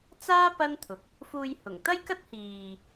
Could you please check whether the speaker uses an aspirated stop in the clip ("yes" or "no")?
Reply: yes